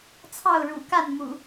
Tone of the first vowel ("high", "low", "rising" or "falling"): falling